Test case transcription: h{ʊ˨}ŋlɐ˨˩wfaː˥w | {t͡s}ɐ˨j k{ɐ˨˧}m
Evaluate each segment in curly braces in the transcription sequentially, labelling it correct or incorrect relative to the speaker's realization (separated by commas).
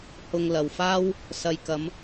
correct, incorrect, correct